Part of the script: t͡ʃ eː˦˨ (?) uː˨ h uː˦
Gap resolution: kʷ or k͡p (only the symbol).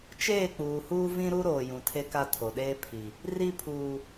k͡p